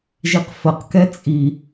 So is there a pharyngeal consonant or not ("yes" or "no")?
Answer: no